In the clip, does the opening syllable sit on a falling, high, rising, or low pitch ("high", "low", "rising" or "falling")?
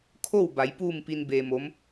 falling